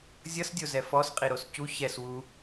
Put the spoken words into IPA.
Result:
zʲ ʌ s dʲ o z ɛ f ɔ s qʼ i ɾ o s c u ç ɛ s w u

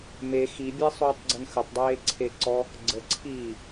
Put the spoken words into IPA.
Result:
m e x i bʲ ɛ sˤ uː tˤ ɡ͡ǀ ə n x ə tˤ dˤ eː ǀʰ e ǀ ɔ | ɡ͡ǀ ə ǀʰ iː

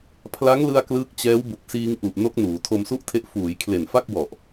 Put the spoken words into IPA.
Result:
pʰ l a˦˥ ŋ l ɯ˧ a̯ k l ɯː˦˥ k̚ t͡ɕ ɛː˦˥ w b u˨˩ k̚ s iː˧ ŋ ʔ u˨˩ ʔ n o˦˥ k̚ n uː˩˦ tʰ o˧ m s u˥˩ ʔ tʰ e˦˥ ʔ f uː˩˦ j kʰ l e˨˩ n f a˥˩ k̚ w ɔ˨˩ ʔ

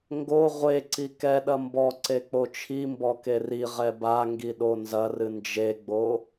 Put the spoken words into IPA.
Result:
ŋ ɡ o ʁʷ e ǀ i k ɛ ɗ ɐ m b ɔ ǀ e k͡p o t͡ʃʰ i m b ɔ k e r i ʁ ɛ b a ŋ ɡ i ɗ o n z ɐ r ɨ n d͡ʒ e ɡ͡b o

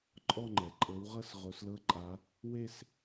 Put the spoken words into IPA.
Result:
ǃʼ ɔ˥˧ ŋ͡ǃ ɛ˩ ǃʼ ɤ˨˦ w ʁ ɤ˥˧ s ʁ o˨˦ s l ɤ˦˥ ǃʼ a˨˦ | w e˥˧ s

